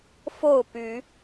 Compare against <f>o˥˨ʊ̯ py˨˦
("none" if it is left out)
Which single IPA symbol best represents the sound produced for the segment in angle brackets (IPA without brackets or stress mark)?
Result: f